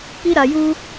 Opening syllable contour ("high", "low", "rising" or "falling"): high